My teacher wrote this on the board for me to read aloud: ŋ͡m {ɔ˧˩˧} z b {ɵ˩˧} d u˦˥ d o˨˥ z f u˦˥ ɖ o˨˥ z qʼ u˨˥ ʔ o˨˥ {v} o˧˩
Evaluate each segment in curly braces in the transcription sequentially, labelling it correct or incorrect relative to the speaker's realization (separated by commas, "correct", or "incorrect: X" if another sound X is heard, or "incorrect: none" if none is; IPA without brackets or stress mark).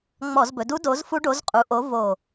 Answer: correct, correct, correct